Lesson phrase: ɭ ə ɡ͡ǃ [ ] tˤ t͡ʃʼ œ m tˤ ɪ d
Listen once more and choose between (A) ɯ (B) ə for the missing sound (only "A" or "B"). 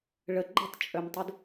B